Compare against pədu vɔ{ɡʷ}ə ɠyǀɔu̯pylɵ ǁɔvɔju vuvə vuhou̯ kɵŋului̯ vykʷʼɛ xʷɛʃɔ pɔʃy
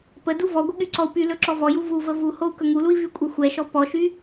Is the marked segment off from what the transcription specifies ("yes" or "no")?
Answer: no